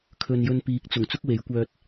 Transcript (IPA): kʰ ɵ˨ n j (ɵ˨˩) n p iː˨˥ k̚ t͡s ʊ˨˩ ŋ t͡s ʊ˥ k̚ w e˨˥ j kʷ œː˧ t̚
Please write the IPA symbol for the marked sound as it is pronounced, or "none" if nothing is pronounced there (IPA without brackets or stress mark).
ɵ˧